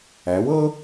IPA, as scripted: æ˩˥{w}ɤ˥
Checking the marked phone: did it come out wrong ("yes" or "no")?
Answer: no